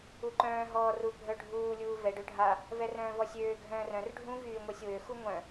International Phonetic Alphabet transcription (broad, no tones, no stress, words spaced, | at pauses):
uǃœ̃ː ɦɔːru bʱœɖʱuː lʲuːvɛɖ øɖʱa | vɛrœ̃ːvɔsʲøː ɡʱœ̃ːrœ̃r ɖʱũ vyːŋʷɛsʲwø xuŋʷœ̃